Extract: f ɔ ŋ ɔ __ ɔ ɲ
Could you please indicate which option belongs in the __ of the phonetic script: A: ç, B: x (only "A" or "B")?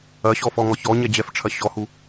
A